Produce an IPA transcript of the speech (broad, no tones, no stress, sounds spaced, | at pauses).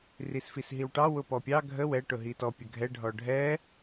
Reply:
r i s f i s ɦ i w ʈ ɑ w ʊ p ɔ pʲ ɑ ɡʱ ə w ɛ ʈ ʊ ɦ i t ɔ pʲ ə ɡʱ ɛ ɖʱ ɔ ɖʱ ɛ